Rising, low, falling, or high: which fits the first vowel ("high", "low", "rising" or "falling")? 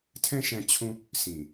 high